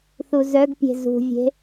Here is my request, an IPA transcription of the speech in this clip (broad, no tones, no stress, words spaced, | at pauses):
θuzœɡpʲe̤ zṳvʲe̤